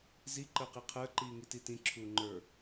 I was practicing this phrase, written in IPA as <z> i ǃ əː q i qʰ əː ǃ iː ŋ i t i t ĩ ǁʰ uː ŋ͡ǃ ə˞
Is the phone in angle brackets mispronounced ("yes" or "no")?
no